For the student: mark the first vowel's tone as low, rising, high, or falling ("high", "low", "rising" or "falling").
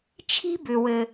high